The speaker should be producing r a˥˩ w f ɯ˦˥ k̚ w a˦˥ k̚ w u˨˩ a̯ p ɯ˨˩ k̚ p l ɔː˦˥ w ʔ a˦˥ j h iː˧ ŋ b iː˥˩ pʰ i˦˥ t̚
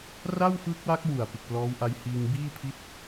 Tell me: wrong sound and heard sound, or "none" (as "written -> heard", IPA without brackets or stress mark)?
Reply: none